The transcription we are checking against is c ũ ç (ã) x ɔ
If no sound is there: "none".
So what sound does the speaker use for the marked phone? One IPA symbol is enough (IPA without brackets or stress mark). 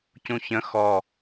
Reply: ə̃